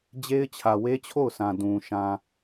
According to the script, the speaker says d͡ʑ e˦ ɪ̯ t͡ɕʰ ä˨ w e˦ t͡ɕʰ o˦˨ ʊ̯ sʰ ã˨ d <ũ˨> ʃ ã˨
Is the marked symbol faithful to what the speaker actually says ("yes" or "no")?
yes